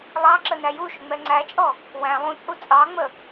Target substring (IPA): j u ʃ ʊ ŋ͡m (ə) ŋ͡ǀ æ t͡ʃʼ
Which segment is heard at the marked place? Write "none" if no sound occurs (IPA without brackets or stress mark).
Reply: ɛ